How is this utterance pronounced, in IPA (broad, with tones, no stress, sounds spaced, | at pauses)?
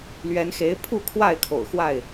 l ɥ ɛ˨˦ n x e˨˦ ɪ̯ pʰ u˥˨ kʰ w a˥˨ ɪ̯ kʰ o̰˨˩ ʊ̯ x w a˥˨ ɪ̯